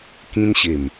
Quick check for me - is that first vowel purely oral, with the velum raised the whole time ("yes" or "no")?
no